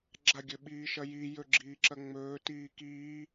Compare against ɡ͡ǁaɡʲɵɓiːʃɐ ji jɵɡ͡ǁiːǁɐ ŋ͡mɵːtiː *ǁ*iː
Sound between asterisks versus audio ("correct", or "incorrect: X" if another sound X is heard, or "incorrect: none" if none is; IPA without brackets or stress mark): incorrect: k